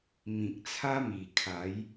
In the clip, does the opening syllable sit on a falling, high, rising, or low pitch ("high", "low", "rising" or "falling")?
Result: low